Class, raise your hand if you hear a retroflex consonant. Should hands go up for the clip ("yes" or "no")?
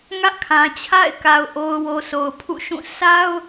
no